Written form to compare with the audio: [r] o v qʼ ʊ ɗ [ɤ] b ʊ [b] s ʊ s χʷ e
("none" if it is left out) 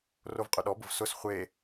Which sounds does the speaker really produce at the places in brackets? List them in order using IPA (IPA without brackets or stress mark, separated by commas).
r, ɔ, v